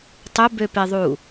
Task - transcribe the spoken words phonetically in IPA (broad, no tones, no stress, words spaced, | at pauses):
tˤʊbøpeðˤu